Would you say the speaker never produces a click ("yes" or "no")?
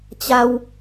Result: yes